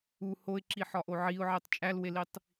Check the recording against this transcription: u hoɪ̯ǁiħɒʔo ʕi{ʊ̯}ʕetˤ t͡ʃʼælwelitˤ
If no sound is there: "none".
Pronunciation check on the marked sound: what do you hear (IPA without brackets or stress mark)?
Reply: ʊ̯